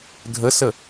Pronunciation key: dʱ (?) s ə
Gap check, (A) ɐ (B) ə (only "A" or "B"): B